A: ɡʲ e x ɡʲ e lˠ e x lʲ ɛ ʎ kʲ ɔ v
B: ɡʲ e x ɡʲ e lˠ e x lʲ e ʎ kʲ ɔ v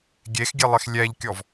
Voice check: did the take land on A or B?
A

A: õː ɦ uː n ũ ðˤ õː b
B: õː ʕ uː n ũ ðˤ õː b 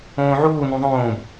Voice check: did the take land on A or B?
B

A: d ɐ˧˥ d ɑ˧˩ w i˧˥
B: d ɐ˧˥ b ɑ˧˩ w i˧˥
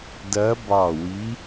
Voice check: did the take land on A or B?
B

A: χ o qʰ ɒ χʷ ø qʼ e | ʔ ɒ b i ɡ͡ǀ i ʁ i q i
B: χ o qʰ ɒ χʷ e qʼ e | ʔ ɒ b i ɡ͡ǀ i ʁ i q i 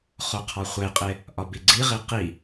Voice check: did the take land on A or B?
B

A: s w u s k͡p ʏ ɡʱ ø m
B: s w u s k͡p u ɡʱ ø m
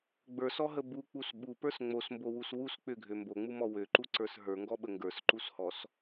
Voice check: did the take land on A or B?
A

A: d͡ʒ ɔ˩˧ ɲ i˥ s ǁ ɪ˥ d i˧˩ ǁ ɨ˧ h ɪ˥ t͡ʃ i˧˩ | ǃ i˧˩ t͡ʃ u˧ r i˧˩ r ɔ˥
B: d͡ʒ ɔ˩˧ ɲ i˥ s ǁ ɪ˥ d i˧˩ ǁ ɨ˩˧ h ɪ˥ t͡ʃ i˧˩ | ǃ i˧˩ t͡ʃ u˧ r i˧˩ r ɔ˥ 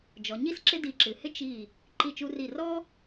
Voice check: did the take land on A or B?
B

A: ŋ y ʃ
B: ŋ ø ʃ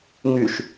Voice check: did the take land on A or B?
A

